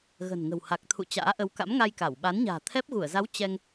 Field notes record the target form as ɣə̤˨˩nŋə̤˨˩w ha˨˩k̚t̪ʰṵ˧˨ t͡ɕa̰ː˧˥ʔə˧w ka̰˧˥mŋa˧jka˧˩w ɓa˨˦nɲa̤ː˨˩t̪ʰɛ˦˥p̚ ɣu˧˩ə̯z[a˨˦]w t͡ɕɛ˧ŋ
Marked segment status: correct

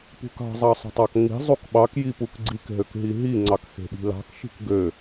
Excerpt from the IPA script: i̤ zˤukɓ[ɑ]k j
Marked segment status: correct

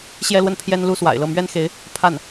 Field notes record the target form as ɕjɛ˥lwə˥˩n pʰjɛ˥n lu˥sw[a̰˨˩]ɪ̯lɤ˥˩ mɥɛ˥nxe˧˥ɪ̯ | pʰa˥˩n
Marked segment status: correct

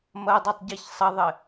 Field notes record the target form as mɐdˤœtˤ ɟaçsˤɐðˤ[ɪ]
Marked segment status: correct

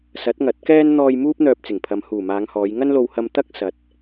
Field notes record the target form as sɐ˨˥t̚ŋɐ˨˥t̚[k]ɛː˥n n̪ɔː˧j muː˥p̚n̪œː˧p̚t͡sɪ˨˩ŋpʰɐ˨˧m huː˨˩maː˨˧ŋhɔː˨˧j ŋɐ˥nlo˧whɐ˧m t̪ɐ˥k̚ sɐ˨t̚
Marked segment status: correct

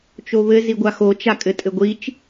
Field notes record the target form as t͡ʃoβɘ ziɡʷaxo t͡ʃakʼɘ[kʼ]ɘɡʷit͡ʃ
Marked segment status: incorrect: tʼ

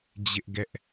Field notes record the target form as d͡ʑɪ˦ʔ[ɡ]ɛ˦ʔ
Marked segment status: correct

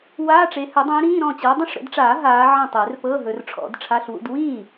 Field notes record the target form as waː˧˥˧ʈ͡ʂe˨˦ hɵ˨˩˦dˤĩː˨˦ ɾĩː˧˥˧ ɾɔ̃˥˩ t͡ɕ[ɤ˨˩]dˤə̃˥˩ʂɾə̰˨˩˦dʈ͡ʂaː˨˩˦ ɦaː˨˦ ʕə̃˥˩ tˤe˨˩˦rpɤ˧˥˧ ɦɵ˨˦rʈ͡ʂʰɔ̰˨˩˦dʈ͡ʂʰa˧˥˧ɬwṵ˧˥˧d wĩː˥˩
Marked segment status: incorrect: ɤ˨˦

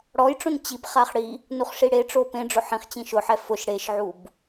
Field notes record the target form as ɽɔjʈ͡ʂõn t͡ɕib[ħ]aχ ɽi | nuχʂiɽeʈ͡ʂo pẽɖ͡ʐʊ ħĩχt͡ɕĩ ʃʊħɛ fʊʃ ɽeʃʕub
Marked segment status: incorrect: χ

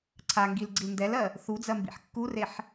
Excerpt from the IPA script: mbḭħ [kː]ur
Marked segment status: correct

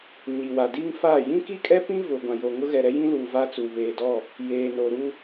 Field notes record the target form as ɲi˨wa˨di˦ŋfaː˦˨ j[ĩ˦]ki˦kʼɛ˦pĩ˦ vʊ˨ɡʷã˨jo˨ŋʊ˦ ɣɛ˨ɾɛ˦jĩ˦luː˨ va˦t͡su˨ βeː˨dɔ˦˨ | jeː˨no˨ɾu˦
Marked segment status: correct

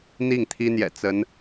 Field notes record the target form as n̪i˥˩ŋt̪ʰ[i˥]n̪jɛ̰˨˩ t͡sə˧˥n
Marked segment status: correct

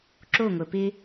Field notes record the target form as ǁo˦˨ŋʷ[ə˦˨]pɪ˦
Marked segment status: incorrect: ə˨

